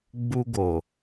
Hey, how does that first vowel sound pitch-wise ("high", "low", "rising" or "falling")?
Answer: high